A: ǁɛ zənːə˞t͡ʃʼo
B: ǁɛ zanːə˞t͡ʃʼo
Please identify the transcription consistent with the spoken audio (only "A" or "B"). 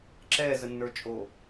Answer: A